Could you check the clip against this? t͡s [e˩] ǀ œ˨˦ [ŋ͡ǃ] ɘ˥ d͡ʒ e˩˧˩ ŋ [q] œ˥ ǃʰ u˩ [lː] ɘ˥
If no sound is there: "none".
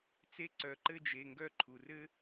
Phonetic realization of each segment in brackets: e˥, ǃ, ɡ, r

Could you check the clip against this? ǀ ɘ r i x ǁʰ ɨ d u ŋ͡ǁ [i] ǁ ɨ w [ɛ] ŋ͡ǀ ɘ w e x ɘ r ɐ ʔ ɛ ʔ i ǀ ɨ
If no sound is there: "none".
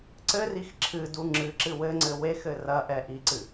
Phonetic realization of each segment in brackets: ɨ, ɘ

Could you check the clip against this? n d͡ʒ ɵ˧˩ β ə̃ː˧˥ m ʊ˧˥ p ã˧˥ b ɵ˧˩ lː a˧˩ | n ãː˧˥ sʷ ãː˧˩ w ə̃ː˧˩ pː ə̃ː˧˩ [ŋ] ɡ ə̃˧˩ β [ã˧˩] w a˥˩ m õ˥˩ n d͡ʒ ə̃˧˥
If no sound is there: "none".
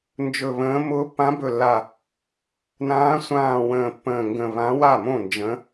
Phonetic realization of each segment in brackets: ŋ, ã˧˥

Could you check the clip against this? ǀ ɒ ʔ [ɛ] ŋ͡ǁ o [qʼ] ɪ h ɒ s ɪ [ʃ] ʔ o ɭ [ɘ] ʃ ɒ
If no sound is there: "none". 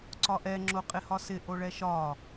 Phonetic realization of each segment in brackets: ɛ, qʼ, none, ɛ

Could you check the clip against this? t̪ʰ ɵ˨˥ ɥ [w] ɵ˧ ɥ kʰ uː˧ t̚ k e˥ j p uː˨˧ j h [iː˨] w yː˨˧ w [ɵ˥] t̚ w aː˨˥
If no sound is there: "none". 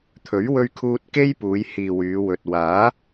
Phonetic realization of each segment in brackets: w, iː˨, ɵ˨

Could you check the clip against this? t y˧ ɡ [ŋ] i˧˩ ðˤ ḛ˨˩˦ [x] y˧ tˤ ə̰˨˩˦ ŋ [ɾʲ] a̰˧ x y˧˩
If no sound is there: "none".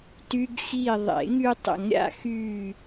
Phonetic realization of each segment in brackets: x, ŋ, ɾʲ

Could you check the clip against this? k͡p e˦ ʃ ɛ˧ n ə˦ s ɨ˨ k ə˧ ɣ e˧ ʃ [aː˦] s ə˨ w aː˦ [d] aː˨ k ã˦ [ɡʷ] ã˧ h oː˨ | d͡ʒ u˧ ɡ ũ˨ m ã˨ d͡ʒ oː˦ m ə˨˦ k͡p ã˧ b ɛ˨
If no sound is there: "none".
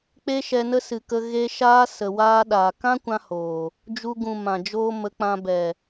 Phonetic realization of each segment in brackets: aː˦, ɗ, kʷ

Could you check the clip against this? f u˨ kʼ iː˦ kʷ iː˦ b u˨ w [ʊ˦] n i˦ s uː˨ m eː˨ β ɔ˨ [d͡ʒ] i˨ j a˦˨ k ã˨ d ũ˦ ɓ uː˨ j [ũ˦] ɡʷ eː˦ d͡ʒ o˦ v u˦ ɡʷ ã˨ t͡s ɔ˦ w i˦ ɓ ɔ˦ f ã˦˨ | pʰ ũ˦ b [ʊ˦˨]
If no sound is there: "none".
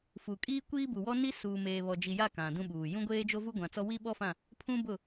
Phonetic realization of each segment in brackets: ɔ˦, d͡ʒ, ũ˦, ʊ˦˨

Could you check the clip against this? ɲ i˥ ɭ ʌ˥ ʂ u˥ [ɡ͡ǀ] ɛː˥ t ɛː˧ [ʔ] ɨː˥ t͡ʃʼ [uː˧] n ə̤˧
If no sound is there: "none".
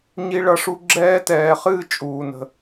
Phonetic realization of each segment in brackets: ɡ͡ǁ, χ, uː˧

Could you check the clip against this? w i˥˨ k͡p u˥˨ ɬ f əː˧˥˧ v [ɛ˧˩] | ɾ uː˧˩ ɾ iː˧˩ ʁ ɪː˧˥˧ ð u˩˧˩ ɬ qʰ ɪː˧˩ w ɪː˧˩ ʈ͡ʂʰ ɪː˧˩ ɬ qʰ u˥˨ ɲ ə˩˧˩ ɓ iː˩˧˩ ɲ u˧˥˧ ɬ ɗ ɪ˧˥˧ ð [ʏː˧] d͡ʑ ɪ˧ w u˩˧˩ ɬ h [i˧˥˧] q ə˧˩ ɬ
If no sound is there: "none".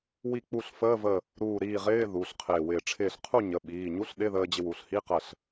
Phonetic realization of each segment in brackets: ə˧˩, əː˧, i˧˥˧

